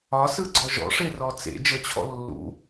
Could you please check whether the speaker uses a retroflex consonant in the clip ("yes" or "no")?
yes